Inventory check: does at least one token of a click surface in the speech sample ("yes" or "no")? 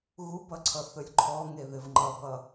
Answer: yes